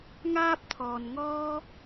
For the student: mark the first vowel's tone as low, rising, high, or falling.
high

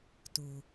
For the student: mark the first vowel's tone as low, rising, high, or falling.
low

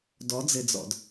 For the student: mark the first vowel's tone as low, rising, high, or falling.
rising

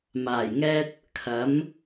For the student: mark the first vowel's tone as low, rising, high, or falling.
low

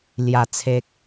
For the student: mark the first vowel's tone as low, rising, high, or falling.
low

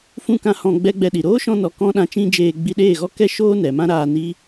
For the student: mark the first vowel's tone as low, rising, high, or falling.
falling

